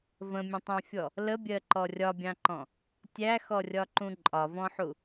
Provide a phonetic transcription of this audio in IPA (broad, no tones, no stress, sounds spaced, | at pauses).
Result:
v ə̃ mʲ ə̃ tˤ æ̃ fʲ ɔ | l ə bʲ ɜ ǃ ɔ rʲ ɒ bʲ ɑ̃ ǃ ɔ̃ | tʲ æ x ɔ rʲ ɒ ǃ ũ ǃʼ ɒ v ɔ̃ ħ u